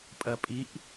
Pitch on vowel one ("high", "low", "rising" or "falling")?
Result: low